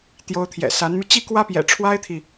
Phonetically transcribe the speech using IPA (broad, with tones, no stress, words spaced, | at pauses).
t̪jo˧˥ʊ̯t̪ʰjɛ̰˨˩sa˧˥nmy˧ t͡ɕi˥˩kwä˥pjɛ̰˨˩ ʈ͡ʂʰwa˥ɪ̯t̪ʰi˨